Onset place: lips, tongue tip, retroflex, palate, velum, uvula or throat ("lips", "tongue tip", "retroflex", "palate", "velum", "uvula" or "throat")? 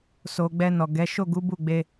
tongue tip